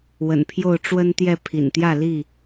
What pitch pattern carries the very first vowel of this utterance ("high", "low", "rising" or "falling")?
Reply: low